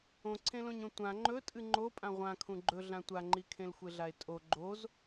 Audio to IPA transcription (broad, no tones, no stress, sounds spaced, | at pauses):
õ ǀʰ ẽ l õ ɲ õ tʷ ã ŋ͡ǃ ɵ tʼ ɨ ŋ͡ǃ o pʼ ã ʁʷ ã kʰ ũ ɡ͡ǃ ɵ ɮ ã tʷ a ŋ͡ǃ i kʰ ẽ l xʷ e ɮ a e̯ tʼ o ɡ͡ǃ o z